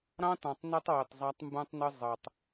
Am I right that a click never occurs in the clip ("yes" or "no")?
yes